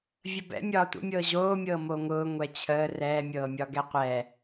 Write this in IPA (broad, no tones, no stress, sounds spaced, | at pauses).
vʲ ə b ɛ̰ mʲ ɒː tʷ ə̰ mʲ ɤː ʑ oː mʲ ɤː m o ŋ ʊː ŋʷ ɛ t͡ɕʰ əː r ɛː mʲ ɤː mʲ ɒ ɡ ɛ qʷ ɛː